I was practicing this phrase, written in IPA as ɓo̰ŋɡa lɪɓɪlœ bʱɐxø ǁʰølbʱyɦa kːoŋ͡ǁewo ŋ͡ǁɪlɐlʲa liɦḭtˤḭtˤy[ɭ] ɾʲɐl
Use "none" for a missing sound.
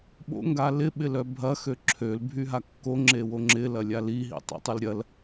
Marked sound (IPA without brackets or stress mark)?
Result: l